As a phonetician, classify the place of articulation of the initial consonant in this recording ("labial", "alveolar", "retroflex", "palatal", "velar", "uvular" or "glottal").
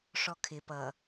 retroflex